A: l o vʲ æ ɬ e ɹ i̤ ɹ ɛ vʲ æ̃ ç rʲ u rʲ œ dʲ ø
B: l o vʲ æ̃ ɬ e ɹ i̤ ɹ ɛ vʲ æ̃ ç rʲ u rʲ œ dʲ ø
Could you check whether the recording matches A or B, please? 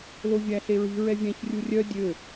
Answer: A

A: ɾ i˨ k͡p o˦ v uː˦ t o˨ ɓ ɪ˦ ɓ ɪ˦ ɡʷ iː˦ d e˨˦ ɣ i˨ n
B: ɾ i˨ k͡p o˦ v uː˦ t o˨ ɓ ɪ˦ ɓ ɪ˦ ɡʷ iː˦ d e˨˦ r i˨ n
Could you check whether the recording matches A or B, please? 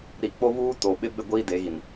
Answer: A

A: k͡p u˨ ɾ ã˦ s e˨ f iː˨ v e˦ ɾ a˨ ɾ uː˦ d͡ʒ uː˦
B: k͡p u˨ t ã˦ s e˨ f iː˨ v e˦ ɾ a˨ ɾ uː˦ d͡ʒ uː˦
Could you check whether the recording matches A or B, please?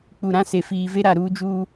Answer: A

